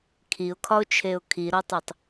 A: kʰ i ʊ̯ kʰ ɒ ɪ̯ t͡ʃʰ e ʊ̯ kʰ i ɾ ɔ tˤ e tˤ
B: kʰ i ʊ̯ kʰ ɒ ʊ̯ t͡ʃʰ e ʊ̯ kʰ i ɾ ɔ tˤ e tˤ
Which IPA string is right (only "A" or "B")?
B